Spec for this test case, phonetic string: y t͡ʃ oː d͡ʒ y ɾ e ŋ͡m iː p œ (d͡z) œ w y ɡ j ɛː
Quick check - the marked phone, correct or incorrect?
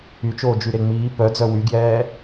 correct